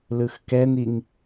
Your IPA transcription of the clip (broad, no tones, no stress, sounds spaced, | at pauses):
l ɯ x k ɛ n i ŋ